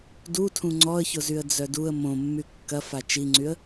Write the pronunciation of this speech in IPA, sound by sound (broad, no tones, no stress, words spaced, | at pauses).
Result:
dutʰũ ŋ͡ǀɔə̯çʊzyə̯ d͡zœduə̯ mõmːy kːɐ fat͡ʃiŋ͡ǀyə̯